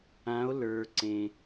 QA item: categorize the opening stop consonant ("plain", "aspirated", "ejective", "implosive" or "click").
click